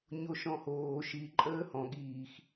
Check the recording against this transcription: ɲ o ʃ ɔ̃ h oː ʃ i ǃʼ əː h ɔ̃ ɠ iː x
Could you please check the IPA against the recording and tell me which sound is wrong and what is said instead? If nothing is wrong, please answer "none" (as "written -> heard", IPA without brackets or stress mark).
none